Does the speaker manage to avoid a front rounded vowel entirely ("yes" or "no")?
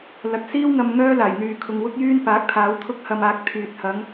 no